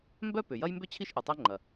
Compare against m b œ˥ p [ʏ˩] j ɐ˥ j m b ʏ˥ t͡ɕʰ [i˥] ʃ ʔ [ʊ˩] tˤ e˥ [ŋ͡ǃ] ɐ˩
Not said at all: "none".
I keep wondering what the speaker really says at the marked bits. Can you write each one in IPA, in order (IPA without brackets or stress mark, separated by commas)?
ʏ˩, i˥, ʊ˩, ŋ͡ǃ